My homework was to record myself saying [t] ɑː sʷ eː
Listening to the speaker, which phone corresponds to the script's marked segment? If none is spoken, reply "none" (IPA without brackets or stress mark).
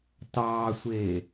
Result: t